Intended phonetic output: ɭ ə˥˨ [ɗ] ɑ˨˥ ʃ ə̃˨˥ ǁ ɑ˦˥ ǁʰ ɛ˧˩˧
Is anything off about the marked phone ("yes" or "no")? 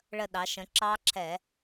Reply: no